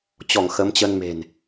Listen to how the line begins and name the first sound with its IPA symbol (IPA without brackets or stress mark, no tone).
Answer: t͡ɕ